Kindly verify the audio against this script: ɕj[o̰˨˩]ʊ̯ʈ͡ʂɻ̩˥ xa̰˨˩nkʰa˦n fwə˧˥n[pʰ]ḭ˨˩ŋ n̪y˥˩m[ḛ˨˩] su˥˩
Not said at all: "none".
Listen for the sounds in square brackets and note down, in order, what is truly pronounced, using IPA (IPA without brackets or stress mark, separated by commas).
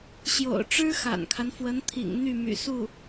o̰˨˩, t̪ʰ, y̰˨˩